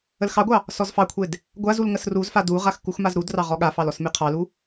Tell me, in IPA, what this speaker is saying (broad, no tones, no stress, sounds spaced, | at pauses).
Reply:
ə l x ɑ ɡʷ ɑ | s ɔ z f ɑ kʷʰ e d | ɡʷ a z u l ŋ ə s r u z f a d u ʁ a x k u x m a z ɾ u d r ɑ ʁ ɔ ɠ a f ɑ l ɔ s m e qʰ ɑ l u